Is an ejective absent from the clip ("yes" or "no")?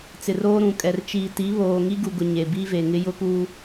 no